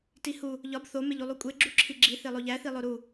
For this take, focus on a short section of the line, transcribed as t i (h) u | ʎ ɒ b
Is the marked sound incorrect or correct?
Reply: correct